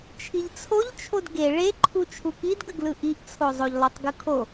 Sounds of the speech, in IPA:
t͡ʃʰiʎt͡sʰoʎt͡ʃʰod ɡe ɭeǃʰu t͡ʃʰukidɡəɡlɯ ʔiʔt͡sʰo zˤoʎlˠotˤɡɯkʰo

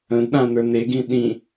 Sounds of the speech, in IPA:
ə̃dɗãnə˞ neɡĩ ɗĩ

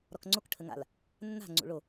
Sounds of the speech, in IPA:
ɾɔkŋ͡ǀok ʈʰəŋa̰l | nːa̤ ŋ͡ǀṵɭo

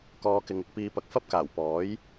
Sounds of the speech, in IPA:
kɔː˨˧kɪ˨ŋɪ˧k̚ piː˨˧pɐ˨k̚fɐ˥p̚kaː˨˩w pɔː˨˥j

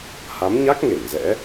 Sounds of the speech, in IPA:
ha˨˦mɲa˦˥k̚ ŋe˧˩ŋzɛ̰˧˥

